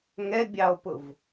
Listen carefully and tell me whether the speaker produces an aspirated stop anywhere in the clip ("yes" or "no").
no